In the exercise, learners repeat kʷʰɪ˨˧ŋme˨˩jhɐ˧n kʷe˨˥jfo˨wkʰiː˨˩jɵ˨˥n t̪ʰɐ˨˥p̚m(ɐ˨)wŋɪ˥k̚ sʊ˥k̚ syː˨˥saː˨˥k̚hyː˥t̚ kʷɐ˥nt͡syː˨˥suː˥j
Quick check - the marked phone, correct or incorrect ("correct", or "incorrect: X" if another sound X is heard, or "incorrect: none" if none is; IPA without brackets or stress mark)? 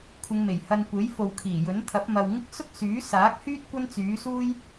correct